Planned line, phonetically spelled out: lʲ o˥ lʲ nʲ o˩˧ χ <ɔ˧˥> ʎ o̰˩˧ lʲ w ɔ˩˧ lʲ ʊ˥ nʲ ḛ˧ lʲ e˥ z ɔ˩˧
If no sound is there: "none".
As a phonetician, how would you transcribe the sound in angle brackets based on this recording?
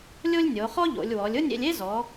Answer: ɔ˥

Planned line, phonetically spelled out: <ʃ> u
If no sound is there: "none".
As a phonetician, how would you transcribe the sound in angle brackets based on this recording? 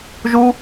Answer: ʒ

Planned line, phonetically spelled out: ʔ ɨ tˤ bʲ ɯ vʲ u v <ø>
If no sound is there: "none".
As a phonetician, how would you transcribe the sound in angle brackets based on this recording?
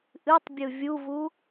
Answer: u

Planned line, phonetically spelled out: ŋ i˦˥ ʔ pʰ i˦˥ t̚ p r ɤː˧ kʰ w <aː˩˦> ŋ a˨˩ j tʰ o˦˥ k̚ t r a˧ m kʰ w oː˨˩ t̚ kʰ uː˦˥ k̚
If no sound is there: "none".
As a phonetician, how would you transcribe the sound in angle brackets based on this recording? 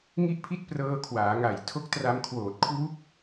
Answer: aː˩˦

